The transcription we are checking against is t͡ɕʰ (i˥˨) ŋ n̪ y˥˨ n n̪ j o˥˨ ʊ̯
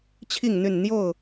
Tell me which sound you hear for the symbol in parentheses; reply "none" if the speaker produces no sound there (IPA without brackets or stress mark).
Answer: i˥˨